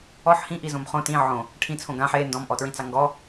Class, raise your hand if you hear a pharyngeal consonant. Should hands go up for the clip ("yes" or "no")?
yes